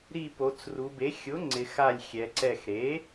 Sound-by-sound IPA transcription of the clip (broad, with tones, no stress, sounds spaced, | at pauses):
ɾ i˧˩ p o˩˧ t͡s r u˩˧ b e˩˥ xʲ ʊ˩˥ ŋ͡ǀ ɪ˩˧ x a˧˩ lʲ xʲ ɛ˩˧ ǀ ɛ˧˩ x ɾ e˩˥